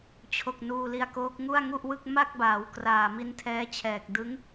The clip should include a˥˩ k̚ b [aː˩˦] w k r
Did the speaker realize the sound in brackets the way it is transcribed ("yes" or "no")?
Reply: yes